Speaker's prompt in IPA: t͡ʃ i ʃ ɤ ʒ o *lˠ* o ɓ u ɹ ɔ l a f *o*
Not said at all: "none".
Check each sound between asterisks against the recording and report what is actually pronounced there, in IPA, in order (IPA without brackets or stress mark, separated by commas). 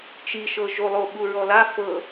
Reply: lˠ, ɤ